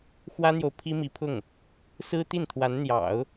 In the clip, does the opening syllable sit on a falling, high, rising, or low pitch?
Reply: high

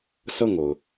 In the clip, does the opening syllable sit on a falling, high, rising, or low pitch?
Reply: falling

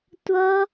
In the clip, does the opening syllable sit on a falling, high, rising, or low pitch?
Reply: high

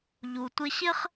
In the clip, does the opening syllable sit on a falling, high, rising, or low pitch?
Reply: low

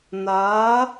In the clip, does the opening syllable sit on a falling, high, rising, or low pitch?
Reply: rising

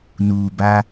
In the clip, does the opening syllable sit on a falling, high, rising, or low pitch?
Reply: low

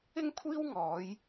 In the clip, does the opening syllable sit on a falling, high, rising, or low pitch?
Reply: high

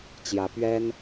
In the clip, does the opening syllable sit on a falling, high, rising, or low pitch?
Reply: rising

